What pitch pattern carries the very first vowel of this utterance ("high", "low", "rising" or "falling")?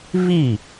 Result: falling